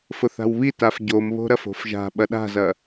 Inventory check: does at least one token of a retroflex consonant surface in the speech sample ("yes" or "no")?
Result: no